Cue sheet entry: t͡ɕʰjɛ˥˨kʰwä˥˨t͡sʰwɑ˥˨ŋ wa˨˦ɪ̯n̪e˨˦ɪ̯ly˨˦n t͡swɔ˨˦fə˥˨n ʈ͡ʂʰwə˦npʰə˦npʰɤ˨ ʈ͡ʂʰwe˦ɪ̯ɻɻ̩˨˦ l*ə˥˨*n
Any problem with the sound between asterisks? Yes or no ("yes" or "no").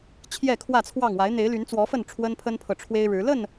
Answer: no